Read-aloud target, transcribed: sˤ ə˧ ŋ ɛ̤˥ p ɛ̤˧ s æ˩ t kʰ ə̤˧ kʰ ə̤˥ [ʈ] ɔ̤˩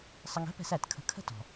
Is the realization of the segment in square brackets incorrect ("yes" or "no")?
yes